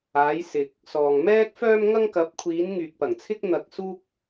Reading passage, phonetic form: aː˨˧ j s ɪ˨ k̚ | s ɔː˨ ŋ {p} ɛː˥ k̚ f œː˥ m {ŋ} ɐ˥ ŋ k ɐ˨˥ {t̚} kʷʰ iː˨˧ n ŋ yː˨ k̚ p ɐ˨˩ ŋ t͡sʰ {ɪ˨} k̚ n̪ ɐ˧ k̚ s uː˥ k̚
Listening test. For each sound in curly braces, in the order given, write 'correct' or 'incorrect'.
incorrect, correct, incorrect, incorrect

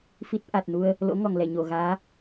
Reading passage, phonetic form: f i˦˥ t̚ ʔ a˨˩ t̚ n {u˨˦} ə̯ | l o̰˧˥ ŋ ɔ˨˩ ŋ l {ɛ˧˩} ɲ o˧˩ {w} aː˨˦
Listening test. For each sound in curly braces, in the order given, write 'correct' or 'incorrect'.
incorrect, correct, incorrect

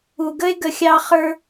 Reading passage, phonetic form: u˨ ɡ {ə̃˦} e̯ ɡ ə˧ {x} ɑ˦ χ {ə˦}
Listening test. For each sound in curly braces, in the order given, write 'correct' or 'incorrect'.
incorrect, incorrect, incorrect

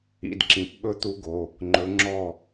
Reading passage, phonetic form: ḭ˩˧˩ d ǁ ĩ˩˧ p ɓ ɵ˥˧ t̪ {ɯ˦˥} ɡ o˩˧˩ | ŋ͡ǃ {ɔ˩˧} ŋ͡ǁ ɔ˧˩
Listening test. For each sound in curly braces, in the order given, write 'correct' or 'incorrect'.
incorrect, incorrect

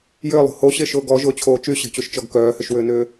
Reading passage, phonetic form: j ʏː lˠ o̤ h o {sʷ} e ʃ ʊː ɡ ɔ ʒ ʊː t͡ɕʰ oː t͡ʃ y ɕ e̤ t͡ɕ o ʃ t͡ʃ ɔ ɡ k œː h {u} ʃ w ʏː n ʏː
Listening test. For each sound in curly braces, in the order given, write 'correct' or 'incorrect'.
incorrect, incorrect

